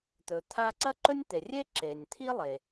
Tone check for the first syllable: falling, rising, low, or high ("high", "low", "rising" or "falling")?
low